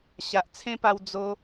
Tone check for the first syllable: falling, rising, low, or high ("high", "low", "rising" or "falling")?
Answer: low